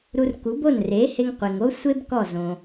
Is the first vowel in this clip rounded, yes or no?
yes